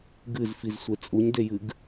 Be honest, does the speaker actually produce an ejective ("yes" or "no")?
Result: yes